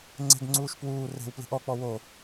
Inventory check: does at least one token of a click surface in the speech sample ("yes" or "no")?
yes